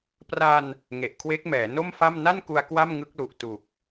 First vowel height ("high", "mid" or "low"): low